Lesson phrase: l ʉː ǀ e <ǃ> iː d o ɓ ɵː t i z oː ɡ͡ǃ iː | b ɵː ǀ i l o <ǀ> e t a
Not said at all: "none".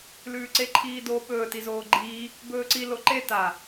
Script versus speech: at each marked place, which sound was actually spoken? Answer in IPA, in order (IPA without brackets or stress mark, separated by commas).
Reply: ǃʰ, ǃ